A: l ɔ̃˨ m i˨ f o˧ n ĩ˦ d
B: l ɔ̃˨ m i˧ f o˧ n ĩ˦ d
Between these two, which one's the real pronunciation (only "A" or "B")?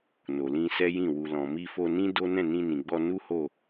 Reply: B